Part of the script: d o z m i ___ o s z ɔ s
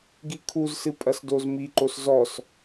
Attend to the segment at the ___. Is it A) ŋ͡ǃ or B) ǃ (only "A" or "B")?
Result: B